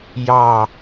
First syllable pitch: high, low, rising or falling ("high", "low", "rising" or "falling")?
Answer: falling